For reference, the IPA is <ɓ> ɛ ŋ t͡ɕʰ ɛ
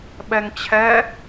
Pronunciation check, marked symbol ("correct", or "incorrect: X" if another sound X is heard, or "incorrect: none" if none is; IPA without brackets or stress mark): correct